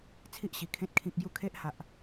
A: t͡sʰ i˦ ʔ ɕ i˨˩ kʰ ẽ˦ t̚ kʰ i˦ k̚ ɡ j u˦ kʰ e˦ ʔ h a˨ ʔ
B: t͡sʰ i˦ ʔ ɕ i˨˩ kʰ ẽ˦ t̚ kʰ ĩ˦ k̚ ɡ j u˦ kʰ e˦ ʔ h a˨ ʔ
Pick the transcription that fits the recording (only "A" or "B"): B